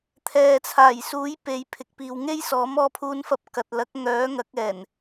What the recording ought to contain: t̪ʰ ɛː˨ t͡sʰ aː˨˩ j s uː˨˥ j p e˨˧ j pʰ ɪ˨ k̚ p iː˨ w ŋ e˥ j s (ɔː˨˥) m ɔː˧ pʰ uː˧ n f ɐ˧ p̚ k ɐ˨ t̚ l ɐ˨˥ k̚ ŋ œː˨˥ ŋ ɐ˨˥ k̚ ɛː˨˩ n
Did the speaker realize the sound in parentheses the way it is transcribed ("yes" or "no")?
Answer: yes